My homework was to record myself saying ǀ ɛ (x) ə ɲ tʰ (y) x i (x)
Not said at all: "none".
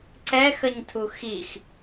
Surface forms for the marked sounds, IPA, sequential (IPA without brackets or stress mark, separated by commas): x, u, x